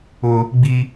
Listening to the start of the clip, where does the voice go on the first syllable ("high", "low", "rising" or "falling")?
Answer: high